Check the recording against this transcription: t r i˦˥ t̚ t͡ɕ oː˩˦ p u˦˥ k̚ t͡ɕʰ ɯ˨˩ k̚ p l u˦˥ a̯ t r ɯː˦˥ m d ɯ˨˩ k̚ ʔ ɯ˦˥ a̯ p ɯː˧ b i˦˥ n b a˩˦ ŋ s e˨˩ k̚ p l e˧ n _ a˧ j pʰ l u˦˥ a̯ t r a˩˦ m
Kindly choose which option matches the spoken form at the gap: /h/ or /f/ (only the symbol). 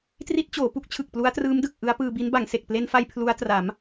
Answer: f